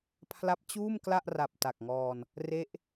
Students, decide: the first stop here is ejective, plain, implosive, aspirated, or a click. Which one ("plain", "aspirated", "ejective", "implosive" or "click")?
aspirated